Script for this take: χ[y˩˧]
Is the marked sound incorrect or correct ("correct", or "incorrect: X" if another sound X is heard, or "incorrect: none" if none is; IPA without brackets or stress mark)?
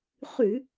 incorrect: y˧˩˧